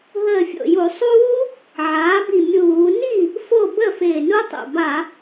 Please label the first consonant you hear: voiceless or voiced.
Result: voiced